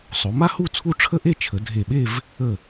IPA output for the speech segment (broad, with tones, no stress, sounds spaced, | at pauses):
sˤ o˩˧ m a˥ h u˥˧ t͡sʰ u˥ ʈ͡ʂʰ ə˥ ʔ e˥˧ t͡ʃʰ ə˩˧ dʱ e˧˩ ɓ e˥˧ v | ə˧˩